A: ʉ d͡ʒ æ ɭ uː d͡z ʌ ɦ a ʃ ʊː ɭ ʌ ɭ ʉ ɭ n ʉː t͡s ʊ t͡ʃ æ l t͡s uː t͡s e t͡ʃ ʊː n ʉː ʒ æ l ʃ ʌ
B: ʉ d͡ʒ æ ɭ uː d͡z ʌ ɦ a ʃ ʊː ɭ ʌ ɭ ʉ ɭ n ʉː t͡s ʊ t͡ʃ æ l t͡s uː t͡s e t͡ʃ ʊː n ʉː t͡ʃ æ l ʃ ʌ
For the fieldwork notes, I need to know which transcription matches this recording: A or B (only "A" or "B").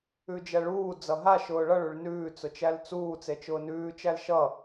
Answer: B